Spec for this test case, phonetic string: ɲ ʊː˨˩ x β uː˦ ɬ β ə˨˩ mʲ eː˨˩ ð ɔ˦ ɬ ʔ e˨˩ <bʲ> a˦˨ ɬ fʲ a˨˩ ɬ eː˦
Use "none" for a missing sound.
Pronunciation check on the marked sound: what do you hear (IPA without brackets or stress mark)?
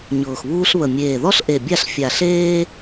bʲ